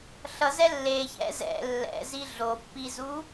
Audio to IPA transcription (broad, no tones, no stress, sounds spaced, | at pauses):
ɬ ʌ z ɛ lː e ç ɛ̰ z ɛ̰ lː ɛ̰ z i ɮ o pː i z u